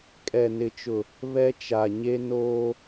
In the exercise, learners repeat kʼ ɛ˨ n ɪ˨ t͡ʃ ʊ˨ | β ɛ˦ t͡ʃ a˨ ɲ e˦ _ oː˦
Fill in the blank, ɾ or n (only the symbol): n